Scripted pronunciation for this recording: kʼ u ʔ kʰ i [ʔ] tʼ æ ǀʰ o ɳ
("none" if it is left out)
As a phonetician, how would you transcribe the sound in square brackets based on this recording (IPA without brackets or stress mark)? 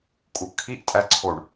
ʔ